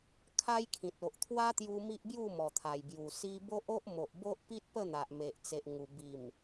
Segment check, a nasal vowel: present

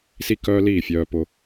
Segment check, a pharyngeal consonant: absent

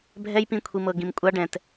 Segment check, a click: absent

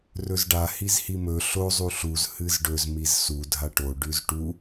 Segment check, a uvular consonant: absent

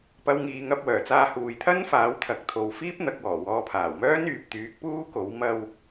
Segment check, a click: absent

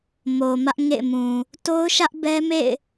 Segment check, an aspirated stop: absent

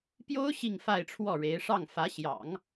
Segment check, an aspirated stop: present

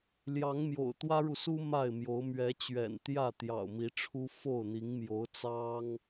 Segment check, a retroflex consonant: present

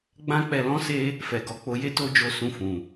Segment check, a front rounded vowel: absent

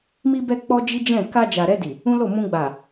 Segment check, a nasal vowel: present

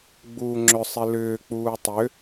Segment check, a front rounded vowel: present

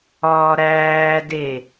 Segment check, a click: absent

